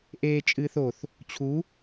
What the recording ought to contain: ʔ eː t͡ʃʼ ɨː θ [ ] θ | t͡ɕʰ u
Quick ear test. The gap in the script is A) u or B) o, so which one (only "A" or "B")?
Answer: B